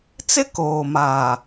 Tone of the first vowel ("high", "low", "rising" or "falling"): high